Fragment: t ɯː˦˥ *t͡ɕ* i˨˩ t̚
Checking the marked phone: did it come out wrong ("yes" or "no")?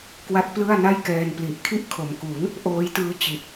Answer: no